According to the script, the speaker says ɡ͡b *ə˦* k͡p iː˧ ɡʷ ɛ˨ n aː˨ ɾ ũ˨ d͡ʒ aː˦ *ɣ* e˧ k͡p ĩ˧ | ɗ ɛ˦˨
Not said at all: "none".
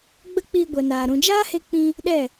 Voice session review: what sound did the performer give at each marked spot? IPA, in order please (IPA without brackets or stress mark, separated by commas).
ə˦, h